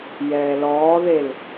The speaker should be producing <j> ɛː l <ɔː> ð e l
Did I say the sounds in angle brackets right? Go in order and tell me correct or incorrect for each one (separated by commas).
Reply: correct, correct